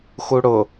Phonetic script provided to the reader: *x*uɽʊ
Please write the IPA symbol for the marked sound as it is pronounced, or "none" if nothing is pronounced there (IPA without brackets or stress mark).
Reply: x